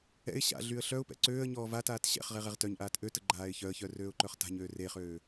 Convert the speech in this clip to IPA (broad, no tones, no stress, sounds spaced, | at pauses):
ɛ̰ ɪ̯ ɕ a̰ ɮ y ə̯ ɬ œ ʊ̯ p ɛ̰ ǀ øː ə̯ ɲ ɔː v a t aː t ɕ ɛ̰ χ ʁ e ʁ ɛ ʁ t œ ɲ ʔ aː t ʔ ø t ə ɡ͡ǃ aː ɪ̯ ç œ ə̯ ç œ r øː ʊ̯ ǃ œ χ t a̤ ɲ øː r e χ øː